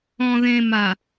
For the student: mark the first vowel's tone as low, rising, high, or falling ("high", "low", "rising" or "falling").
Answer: low